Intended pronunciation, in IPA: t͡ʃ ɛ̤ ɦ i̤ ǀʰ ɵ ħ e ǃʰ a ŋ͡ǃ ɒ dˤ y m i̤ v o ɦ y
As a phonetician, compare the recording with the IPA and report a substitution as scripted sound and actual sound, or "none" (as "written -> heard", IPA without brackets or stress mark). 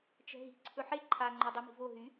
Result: none